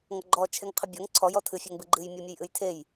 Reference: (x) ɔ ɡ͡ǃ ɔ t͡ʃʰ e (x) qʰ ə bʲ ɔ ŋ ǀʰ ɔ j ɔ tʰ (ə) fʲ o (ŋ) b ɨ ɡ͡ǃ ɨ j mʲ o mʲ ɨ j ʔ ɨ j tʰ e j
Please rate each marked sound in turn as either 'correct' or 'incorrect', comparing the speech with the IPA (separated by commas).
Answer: incorrect, incorrect, incorrect, correct